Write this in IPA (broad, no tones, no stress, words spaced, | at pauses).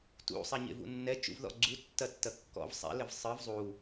tṵ sˤɛɲḛvṵnːɛ t͡ʃṵvðɔ̰ɡ͡ǀu tːɐtːɐkːɔ̰v sˤɛ̰ lɘvsˤɨv zˤu